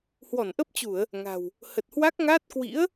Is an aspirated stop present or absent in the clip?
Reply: absent